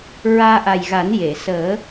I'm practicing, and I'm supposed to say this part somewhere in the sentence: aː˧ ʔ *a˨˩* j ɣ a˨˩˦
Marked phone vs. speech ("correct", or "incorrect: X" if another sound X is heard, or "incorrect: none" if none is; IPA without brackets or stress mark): correct